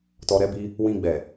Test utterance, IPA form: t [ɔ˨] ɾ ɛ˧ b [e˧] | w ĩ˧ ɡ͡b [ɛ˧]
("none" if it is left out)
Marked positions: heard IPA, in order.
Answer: ɔ˨, i˧, ɛ˨

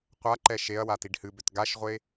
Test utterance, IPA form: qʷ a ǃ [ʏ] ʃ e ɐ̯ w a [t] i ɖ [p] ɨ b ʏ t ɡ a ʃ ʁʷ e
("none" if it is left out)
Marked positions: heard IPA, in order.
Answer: ɛ, t, h

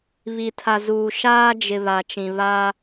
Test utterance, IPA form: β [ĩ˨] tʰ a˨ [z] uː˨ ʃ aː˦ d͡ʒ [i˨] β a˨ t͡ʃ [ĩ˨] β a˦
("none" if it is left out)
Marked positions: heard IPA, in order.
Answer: i˨, z, ɪ˨, ĩ˨

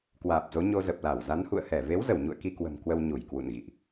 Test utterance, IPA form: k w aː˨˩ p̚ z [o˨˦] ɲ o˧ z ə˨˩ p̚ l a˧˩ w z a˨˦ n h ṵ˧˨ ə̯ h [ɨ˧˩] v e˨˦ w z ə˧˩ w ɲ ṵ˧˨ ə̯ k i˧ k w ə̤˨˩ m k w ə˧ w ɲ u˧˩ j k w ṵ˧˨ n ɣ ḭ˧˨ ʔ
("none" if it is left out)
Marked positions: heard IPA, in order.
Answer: o˨˦, ɛ˧˩

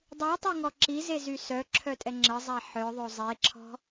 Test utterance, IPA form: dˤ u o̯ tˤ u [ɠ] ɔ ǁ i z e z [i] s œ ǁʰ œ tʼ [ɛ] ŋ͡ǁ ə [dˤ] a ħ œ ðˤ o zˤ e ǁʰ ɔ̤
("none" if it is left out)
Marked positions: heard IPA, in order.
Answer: ŋ, y, ɛ, zˤ

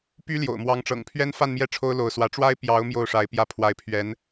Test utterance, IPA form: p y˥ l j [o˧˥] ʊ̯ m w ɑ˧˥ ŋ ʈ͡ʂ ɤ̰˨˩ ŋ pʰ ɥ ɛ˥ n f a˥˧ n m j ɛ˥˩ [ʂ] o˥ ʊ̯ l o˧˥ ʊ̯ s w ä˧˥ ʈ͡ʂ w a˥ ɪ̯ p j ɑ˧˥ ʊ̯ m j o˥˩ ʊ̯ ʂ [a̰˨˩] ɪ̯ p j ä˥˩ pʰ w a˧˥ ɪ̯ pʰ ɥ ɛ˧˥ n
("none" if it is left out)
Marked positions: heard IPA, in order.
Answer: o̰˨˩, ʈ͡ʂʰ, a˧˥

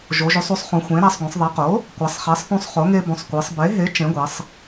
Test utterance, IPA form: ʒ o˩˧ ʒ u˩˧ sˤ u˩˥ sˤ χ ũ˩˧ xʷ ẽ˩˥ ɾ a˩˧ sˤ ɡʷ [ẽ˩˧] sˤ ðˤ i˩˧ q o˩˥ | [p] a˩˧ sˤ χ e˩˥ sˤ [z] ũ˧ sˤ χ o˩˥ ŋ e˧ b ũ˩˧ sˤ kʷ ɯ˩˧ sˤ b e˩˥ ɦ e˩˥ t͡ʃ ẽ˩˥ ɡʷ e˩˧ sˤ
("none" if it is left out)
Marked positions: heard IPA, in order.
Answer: ẽ˩˧, kʷ, θ

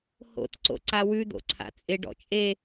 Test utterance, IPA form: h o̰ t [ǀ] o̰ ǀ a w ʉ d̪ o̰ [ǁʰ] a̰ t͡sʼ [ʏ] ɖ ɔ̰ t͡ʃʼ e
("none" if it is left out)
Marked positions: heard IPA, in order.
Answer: ǀ, ǀʰ, ɪ

